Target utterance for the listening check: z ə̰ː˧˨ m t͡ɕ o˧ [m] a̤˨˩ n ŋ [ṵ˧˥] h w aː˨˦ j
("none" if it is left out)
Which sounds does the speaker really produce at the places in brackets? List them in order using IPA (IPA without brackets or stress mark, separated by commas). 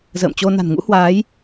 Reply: n, ṵ˧˥